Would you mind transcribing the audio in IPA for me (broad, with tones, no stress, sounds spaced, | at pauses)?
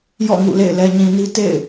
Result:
j ɔ̰˦˨ ŋ ṵ˦˨ l ḛ˦˨ ɪ̯ l ɛ˨ ɲ ĩ˨ n i˦ t ḛ˦˨ ɪ̯